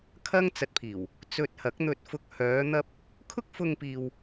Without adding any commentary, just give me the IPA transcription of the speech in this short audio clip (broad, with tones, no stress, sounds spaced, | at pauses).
kʰ ɐ˥ ŋ t͡s ɐ˧ t̚ pʰ iː˨˩ w | t͡s ɵ˧ t̚ h ɐ˨˥ k̚ n̪ ɵ˧ t̚ f ʊ˧ k̚ h œː˨˧ n̪ ɐ˧ p̚ | kʰ ʊ˥ k̚ f ʊ˧ ŋ p iː˨ w